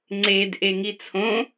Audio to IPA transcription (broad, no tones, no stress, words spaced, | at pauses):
ŋ͡ǀed ʔeŋit͡sʰõ